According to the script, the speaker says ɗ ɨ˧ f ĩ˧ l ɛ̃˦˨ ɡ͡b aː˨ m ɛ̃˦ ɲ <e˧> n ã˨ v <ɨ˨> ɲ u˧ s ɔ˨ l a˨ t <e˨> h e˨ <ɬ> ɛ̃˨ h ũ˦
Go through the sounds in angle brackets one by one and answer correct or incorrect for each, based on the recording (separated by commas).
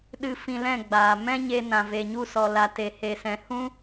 correct, incorrect, correct, incorrect